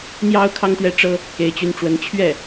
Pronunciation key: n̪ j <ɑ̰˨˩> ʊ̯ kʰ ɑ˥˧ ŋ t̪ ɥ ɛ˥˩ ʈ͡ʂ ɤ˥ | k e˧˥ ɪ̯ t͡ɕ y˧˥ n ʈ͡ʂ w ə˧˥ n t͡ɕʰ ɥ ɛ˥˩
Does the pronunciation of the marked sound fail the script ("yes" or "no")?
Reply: yes